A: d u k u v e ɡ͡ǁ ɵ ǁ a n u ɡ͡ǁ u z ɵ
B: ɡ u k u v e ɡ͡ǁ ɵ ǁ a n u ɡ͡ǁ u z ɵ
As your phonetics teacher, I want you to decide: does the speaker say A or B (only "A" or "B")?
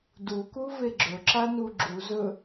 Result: A